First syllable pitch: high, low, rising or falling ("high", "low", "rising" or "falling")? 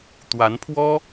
rising